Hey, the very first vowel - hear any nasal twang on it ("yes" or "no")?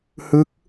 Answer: no